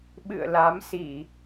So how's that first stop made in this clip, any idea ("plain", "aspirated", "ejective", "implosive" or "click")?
implosive